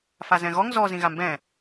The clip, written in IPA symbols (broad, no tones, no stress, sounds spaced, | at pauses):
f a z ɛ̃ ɣ ɔ ŋ z ɔ z ĩ ɣ a m b ɛ̃